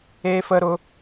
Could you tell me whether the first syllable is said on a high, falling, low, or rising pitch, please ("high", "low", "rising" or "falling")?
high